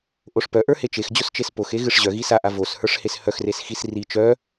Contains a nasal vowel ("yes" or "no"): no